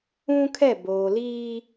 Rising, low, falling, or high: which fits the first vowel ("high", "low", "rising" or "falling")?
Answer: high